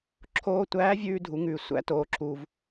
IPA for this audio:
ǁʰoː˧tʷæː˧˥vʲʉː˧ dʱu˩˧ŋʉː˩ sʷæ̰˧˥ toː˩˧ǁuː˩v

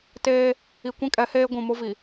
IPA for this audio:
teː˦ | i˨kʷĩ˦kʼɛ˨˦heː˦ ɡʷũ˨mʊ˦vi˨

